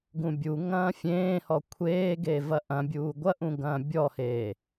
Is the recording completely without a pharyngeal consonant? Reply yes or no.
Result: yes